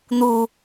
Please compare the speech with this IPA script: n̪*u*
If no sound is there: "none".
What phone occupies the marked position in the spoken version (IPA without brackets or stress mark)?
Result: u